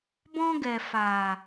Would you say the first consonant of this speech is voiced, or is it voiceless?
voiced